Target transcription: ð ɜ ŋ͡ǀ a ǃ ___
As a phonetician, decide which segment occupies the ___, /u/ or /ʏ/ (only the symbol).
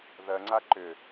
ʏ